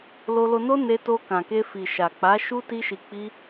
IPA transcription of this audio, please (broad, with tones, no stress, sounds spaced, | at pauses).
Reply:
l o˧ l o˧ n o˦ n e˧ t o˧ k ã˨ k e˧ f i˨ ʃ a˨ k͡p a˨˦ ʃ u˦ t i˦ ʃ i˧ k͡p i˦